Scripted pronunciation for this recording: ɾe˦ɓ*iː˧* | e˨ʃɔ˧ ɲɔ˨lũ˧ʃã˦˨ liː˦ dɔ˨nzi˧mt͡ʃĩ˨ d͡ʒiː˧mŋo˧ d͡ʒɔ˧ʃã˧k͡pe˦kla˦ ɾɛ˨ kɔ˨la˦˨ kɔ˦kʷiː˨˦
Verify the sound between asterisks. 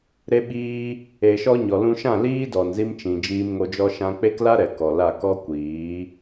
incorrect: iː˦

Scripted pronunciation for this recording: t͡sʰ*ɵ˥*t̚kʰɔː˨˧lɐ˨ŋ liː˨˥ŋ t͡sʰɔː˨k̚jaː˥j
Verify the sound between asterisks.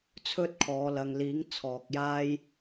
correct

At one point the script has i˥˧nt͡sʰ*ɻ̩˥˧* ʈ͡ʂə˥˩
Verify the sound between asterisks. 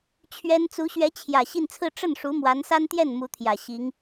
incorrect: ɹ̩˥˧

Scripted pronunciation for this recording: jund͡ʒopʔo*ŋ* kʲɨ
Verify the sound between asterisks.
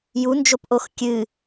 incorrect: x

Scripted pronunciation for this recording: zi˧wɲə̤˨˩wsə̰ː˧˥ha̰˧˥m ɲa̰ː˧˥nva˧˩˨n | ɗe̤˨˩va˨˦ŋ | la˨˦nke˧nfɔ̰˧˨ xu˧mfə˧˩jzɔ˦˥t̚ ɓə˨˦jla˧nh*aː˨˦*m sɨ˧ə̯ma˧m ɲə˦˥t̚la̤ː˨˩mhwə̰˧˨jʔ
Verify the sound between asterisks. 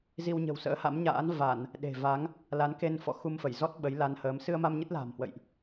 incorrect: əː˨˦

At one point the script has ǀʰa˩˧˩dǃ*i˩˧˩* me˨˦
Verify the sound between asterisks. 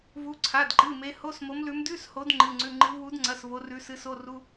incorrect: ɨ˩˧˩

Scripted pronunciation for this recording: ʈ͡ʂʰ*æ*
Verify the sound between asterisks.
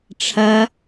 incorrect: ɐ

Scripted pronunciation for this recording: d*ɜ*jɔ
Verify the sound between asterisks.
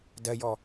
correct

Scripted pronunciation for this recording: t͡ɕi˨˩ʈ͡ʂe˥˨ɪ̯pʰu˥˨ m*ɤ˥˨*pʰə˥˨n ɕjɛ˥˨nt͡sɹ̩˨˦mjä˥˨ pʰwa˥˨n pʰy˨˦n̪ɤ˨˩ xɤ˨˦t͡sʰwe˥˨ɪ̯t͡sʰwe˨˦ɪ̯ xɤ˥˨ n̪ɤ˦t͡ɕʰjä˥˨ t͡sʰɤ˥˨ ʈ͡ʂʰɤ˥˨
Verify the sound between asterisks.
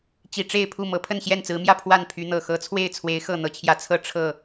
incorrect: ɤ˨˦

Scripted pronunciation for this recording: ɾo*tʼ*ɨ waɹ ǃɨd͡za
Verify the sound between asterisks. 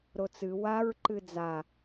incorrect: t͡s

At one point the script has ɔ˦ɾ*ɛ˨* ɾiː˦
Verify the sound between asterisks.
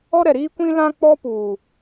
correct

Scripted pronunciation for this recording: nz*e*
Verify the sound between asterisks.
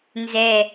incorrect: ɛ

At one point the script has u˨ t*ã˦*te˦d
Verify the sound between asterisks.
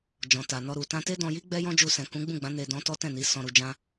incorrect: ã˧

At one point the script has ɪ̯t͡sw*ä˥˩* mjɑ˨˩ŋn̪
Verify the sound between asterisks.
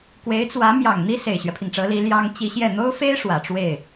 incorrect: ä˧˥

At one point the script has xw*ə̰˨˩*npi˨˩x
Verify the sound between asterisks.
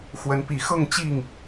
incorrect: ə˨˦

